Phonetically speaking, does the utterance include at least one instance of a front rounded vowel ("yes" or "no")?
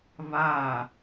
no